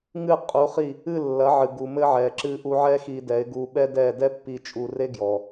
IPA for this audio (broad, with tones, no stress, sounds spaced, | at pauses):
ŋ ɨ˥˩ qʼ u˩˥ χ i˥˩ | ɨ˥˩ lː ɐ˩˥ ʕ ɨ˩ ɡ u˩ m ɘ˧ ʕ ɛ˩ ǁ ɨ˧ ʔ u˧ ʕ ɛ˥ x i˧ d ɛ˩˥ ɪ̯ ɡ u˧ ɓ ɛ˥ d ɛ˥˩ d ɛ˥ pː i˧ t͡ʃʼ u˧ r e˥ ɡ j ɔ˩